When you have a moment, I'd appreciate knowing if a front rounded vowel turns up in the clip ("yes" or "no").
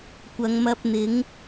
no